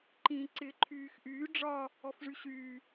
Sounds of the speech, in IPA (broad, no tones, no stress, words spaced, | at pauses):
ǃĩːǀɪːǃʰyːxʔyː ɖ͡ʐɒ | ɔfʐyɕyː